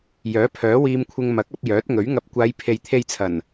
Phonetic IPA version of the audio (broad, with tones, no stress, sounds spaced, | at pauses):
j œː˨˥ pʰ œː˨˥ w iː˧ m kʷʰ ɪ˧ ŋ m ɐ˨˥ k̚ ɐ˧ p̚ j œː˨˥ t̚ ŋ ɵ˨˥ ɥ ŋ ɐ˧ p̚ kʷ aː˨˧ j pʰ e˨ j t̪ʰ e˧ j t͡sʰ ɐ˨˩ n